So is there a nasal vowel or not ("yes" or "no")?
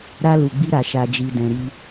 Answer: yes